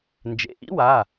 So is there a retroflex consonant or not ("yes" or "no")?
no